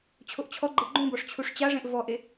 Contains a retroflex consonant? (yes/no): yes